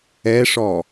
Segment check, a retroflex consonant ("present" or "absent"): present